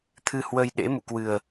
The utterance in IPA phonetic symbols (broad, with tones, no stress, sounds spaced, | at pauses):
t̪ʰ ɨ˧ h w ə˧ j ɗ ḛ˧˥ m ṵ˧˨ k w ɨ˨˩ ə̯